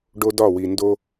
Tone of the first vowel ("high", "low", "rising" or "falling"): high